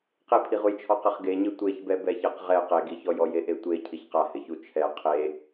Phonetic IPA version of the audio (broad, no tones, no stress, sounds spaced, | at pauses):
q e pʰ i ʁ u j t͡ʃʰ ɔ q ɪ χ ɡ e ɲ ɪ tʷ e ç b ɛ b ɛ ç e q ʁ ɛ q e ɡ i ç ɔ j ɔ j e ʔ e tʷ e cʰ i ç q a h ɪ ç u t͡ʃʰ ɛ qʰ e